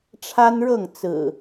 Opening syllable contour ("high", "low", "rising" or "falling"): high